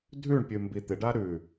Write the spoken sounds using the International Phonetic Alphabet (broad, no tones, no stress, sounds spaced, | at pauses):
dʱ ʉ ɳ pʲ ʉ m b i t̪ ɪ ɖ a ɾ ʉ